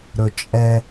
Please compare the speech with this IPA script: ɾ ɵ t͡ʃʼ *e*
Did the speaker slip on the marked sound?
yes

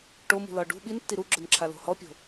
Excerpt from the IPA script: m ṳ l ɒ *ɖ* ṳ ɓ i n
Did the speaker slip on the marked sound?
no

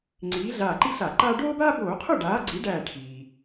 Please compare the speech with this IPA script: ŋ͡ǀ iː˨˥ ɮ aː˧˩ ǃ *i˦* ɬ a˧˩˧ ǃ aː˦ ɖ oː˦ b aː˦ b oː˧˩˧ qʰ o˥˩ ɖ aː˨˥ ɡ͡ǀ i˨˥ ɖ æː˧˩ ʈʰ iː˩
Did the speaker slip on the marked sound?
no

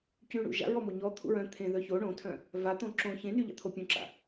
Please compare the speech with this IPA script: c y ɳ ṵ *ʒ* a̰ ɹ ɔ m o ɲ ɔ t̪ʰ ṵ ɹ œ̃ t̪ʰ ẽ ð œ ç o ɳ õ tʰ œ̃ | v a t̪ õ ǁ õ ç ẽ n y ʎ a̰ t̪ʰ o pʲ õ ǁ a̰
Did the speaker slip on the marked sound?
no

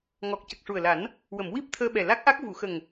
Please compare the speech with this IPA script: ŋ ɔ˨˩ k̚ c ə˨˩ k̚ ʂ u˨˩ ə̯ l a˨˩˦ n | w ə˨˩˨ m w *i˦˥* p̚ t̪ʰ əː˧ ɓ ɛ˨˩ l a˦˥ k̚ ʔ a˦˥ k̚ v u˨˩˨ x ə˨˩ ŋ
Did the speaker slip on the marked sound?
no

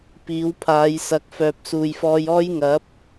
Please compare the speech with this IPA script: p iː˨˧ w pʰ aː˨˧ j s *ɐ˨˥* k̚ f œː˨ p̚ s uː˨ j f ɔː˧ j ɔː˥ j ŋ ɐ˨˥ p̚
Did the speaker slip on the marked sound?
no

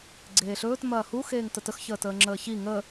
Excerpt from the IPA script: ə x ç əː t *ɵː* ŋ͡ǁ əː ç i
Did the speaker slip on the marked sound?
yes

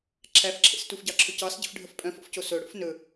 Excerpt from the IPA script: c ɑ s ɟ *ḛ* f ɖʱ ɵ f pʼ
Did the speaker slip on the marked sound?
yes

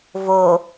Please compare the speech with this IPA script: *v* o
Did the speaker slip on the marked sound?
no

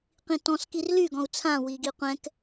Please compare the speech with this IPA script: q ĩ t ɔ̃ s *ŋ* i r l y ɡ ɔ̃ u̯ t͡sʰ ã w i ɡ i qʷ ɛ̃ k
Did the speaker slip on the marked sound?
yes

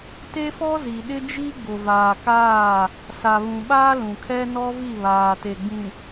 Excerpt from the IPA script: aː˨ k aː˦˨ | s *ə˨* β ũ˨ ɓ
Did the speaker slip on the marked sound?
yes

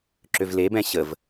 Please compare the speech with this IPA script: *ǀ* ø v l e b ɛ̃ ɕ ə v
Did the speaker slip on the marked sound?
yes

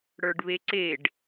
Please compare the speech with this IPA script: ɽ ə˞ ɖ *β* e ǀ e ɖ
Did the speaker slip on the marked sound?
no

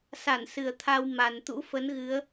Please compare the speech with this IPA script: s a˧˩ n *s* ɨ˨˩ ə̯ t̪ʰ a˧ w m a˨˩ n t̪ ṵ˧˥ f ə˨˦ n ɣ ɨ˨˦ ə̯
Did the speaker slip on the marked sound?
no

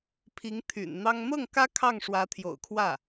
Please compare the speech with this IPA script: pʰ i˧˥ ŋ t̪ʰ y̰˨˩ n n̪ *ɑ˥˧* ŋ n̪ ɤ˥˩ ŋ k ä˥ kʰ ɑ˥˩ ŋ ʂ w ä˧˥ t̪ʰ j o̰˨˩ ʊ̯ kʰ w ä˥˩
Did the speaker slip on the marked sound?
yes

